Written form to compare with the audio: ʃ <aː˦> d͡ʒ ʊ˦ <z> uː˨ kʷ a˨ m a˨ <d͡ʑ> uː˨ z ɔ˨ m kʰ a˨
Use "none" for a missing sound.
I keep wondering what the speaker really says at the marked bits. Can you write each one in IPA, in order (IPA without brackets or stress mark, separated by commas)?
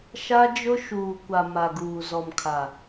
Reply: a˦, ʃ, ɡ